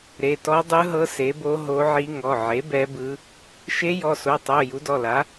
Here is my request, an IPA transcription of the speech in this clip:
ɾe˩˧˩tɔ˧˥ dˤɯ˧˥ɦɤ˧˥ se˩˥bo˧˥ ɦo˧˥ʕi˧˥ ŋɔ˩˧˩ʕe˩˥ bɛ˧˥bɯ˧˥ | ʃe˧˥jɔ˩˧˩so˩˧˩tˤo˩˧˩ ju˩˥dɔ˩˧˩la˩˥

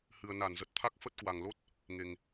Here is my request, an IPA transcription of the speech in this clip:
hɨ˨˩ə̯na˧˩nzə˨˩t̚ t̪ʰa˦˥k̚fə˦˥t̚kwa˨˩ŋ lo˦˥t̚ | ŋe˨˩ŋ

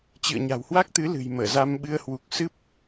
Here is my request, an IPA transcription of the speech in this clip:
t͡ɕɨ̰˧˨ə̯ɲa̤˨˩whwa˦˥k̚t̪ɨ˨˦ lɨ̤˨˩jməː˧˩za˧m ɓɨ˧ə̯ hwu˨˩k̚sɨ˦˥p̚

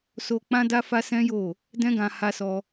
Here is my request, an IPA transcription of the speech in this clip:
so˧k͡pã˦da˦ fa˦sɛ̃˦jo˦˨ | dɛ̃˦ɡã˧ ha˦sɔ˦

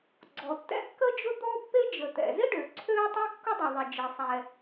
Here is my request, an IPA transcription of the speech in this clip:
ɡ͡ǀɔ˩tːɛ̰˥kːə˥d͡ʒʊ˥ d̪ɔ˥pːe˥d͡ʒə˩ t̪ɛ̰˩zɪ˥ ɖø˩ ǀʰø˥tˤɛ˥kːʊ˥ dˤɪ˩ ðˤɪ˩ d͡ʒɪ˩sˤɛ˩

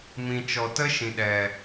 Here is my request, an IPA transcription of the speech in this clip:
mĩ˨t͡ʃɔ˨tə˦ ʃĩ˨ɗɛ˨

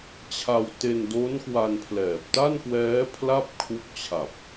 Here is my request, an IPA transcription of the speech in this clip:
t͡ɕʰa˧wte˧ndo˦˥n kwa˧npʰlɛː˨˩p̚ta˥˩nkwɛː˦˥ pʰla˥˩p̚kʰu˦˥k̚t͡ɕʰa˨˩p̚

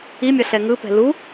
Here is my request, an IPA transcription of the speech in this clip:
imʲʌɬɛ ŋɯpɛ̤ lu

